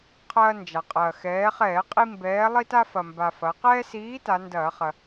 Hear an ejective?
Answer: yes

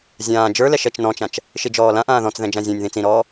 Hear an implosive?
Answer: no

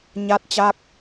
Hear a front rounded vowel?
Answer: no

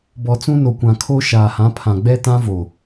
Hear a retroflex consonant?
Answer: no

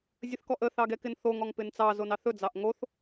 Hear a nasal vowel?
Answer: no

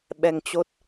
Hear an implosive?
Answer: yes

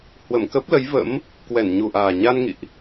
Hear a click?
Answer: no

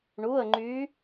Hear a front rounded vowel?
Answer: yes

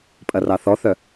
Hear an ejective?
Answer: yes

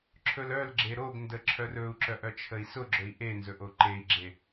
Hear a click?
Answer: yes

